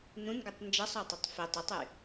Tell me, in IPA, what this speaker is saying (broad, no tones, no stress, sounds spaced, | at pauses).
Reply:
n ũ n ɡ u tˤ n d͡ʒ ɐ sˤ ɔ tˤ ɐ tˤ f i tˤ ə tˤ y